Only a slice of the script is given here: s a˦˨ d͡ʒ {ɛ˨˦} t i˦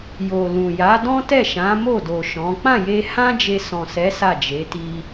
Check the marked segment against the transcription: incorrect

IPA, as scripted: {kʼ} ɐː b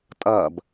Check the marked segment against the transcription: incorrect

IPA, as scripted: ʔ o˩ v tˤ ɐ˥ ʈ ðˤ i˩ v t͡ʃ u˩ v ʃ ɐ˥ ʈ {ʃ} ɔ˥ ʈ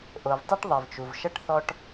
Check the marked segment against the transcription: incorrect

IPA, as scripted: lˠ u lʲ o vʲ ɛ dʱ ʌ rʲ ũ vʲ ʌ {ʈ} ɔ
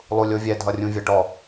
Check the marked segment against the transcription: correct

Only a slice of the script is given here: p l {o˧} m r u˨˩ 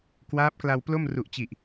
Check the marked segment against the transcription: incorrect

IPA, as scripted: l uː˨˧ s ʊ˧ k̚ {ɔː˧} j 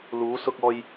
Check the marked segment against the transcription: correct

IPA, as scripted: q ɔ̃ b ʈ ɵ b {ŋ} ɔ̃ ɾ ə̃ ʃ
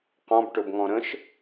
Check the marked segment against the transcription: correct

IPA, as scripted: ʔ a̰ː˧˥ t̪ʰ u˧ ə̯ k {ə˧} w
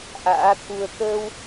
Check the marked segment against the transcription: incorrect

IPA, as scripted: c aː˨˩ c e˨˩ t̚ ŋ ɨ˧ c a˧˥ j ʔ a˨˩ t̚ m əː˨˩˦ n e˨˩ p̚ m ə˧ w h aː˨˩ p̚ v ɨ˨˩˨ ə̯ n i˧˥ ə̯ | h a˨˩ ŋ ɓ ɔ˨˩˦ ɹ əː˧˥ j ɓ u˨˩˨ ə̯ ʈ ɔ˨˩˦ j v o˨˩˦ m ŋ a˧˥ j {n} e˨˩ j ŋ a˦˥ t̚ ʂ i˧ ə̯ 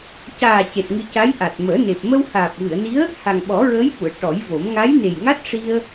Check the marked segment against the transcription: correct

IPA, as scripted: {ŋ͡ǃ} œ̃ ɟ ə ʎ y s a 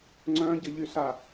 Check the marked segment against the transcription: incorrect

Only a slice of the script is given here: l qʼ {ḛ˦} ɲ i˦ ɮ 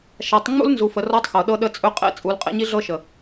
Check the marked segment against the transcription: correct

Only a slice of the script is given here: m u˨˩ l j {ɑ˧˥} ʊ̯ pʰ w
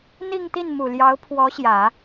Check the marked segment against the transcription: correct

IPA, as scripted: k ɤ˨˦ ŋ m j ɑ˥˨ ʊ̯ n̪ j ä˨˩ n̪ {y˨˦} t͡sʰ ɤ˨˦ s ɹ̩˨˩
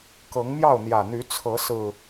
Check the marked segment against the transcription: correct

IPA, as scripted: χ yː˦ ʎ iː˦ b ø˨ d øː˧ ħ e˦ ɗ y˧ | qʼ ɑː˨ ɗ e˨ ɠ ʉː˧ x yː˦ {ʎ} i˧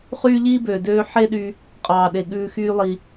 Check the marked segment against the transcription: incorrect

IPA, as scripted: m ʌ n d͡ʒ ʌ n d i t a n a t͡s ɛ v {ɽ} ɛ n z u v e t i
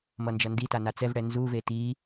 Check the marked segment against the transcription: correct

